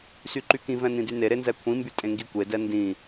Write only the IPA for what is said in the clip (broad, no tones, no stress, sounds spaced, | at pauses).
s y ǃ y k ĩ v ɛ̃ n ĩ d y n e ɾ e n z ɛ kʷʰ ĩ m b y tʼ ẽ ŋ ɡ i kʷ e d ɛ n d ĩ